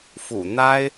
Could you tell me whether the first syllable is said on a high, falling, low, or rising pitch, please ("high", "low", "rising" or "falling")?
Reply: low